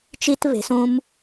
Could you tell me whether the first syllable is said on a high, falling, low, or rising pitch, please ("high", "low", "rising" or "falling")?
high